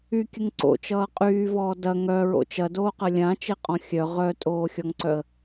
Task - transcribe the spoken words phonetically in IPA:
y kʲ ə ŋ ǀ o̰ t͡ʃ ʌː qʼ yː v ɔː d ɐ ŋ œ ɹ o̰ t͡ʃ ɐ d oː q ɐ lʲ ã t͡ʃ e qʼ ɔ̃ xʲ œ ʁ œ tʼ oː xʲ ɔ ŋ ǀ œ ə̯

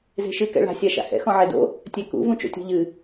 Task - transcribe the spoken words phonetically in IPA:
z e̤ ʃ ɨ k ɛ̰ ɭ a̤ sʲ a ʃ a̰ h ɛ̰ x ɔ̃ ʕ e d o̰ | tʲ ɛ k ṵ v ũ t͡ʃ o̰ tʲ ɔ̤ ʎ ɨ

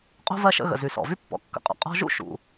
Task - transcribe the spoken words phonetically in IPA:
qʼ o̤˥ v ɜ˦ ʃ ə̰˦ ɣ ə̰˩ z y˩ s ɔ̰˩ v y˥ pː ɔ̰˩ kː ə̰˨ qʼ ɔ̰˩ qʼ ɔ̤˦ ʒ ṵ˥ ʃ ṵ˩

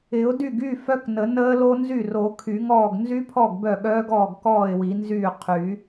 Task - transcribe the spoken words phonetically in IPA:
ɪ˨˩˦ ʊ̯ d y˥˩ ɡ y˥˩ f œ˦˥ k n ə˨˩˦ n əː˦˥ l o˦˥ n z y˥˩ r o˨˩˦ kʰ y˨˩˦ ŋ ɔː˥˩ ɡ n z y˦˥ pʰ ɔ˥˩ ɡ b œ˥˩ ɠ œː˦˥ ɡ ɔː˥˩ ɡ k ɔː˥˩ ɪ̯ w i˨˩˦ n z yː˥˩ qʰ y˨˩˦

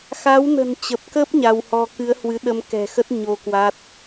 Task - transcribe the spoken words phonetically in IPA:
x a˨˦ w n ə̤˨˩ n t͡ɕ ə˨˩ p̚ k ə˦˥ p̚ ɲ a˧ w h ɔ˧ k ɨ˨˦ ə̯ h w ɨ˨˦ ɗ ə˧ m k ɛ̤˨˩ x ə˦˥ t̚ ɲ o˧ k w a˦˥ t̚

